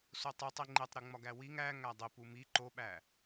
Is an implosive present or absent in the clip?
present